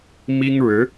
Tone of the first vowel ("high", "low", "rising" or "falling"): high